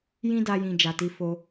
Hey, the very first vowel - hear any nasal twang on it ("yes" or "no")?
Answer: yes